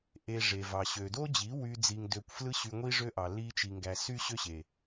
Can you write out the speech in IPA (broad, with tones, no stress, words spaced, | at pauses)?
ʔe˧ʐe˨vɑ˨ ɕø˨do˦d͡ʑi˨˦ wy˦d͡zi˧ŋdø˧kʷ flɯ˦ɕy˧ŋʷi˦ ʐø˦ʔɑ˨ li˧t͡ʃi˨ŋɡæ˨ sy˦ɕø˦ɕe˨